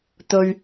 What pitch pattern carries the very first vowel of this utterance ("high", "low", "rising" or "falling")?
low